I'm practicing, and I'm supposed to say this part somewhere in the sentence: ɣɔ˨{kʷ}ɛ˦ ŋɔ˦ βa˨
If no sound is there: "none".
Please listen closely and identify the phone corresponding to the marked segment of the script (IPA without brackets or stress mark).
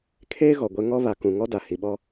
ɡʷ